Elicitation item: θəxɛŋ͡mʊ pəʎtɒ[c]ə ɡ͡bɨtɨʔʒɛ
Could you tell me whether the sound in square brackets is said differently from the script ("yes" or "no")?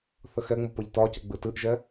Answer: no